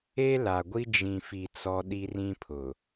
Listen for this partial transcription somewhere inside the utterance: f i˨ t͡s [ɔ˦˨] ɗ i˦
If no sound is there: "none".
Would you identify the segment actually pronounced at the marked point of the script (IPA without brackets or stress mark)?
ɔ˦